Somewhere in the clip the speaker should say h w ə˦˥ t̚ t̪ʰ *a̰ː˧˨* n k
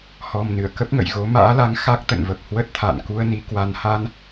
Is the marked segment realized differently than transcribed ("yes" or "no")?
no